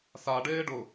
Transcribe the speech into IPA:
s a ɖ eː ɖ ʊ

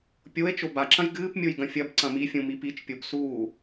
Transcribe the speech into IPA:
pʲ o e̯ t͡ʃ o b a ǁ ɐ̃ j ɡ ɨː p mʲ o j ɡ ɐ̃ fʲ ɐ b ǀ ɐ̃ m i fʲ ũ m i p i t͡ʃ pʲ o b s uː

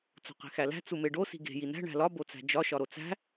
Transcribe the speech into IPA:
t͡s o̤ q e̤ x æ l æ̤ t͡s u m e ɖ o s i̤ ɡ e̤ j i n æ̤ ɳ æ̤ l ɒ b o t͡s æ̤ d͡ʒ ɒ ʃ ɒ ɾ o t͡s æ̤

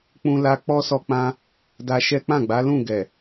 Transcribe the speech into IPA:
k͡p ũ˦ l a˦ k͡p ɔ˦ s ɔ˦ k͡p ã˦ | d a˧ ʃ ɛ˦ k͡p ã˦˨ ɡ͡b a˨˦ l ũ˦˨ ɡ ɛ˨

